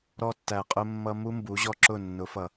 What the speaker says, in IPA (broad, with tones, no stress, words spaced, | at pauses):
ɾɔ˧tːæ˨qʼʊ˧mːʌ˧ mu˦mbu˨˦ ʑɔ˦ǁʊ˦˨ nːʊ˨˦fʌ˨